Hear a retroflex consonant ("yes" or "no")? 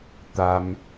no